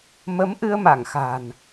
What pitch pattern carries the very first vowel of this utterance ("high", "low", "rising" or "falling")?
rising